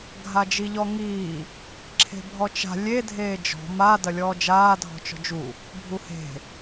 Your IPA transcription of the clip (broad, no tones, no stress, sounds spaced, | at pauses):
ɡʱ a d͡ʒ i ʎ ɔ ŋ iː | ǁʰ e̤ bʱ ɔ t͡ʃ a̤ lʲ e dʱ eː d͡ʒ ɔ̤ m a d ɐ lʲ ɔː d͡ʒ aː dʱ ɔ̤ t͡ʃ ɔ̤ d͡ʒ u | bʱ u h e̤